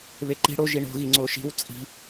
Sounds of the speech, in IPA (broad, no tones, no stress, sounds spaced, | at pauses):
β e ǃ i̤ ɽ o ʒ i ɳ o̤ ɣ i ŋ͡ǀ o ʃ i̤ w t͡sʼ i̤